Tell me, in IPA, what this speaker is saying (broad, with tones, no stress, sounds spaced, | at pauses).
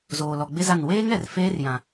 z oː˨ l ɔ˨ ɡ͡b ɪ˦ z a˦˨ n w eː˦ ŋ ɛ˨ r f eː˦ r j ã˨